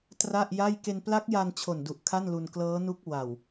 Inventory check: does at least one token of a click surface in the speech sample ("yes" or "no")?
no